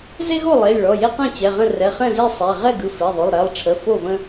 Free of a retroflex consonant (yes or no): no